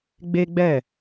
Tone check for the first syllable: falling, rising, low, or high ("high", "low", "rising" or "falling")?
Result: high